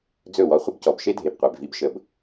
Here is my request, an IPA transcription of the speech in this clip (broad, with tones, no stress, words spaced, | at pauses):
d͡zɵ˥˩wɔ˧χʷə˥b cɔ˩bʃe˥dʱe˩bqʷe˩b vi˧b ʃə˩b